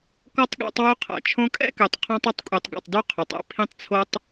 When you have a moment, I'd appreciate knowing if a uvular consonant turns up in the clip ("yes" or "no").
yes